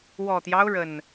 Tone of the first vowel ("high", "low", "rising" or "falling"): low